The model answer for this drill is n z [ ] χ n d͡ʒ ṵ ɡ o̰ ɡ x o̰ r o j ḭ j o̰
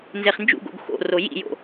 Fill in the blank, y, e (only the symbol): e